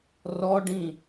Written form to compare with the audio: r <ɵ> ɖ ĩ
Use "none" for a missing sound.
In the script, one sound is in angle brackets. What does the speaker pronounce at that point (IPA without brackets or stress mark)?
ɔ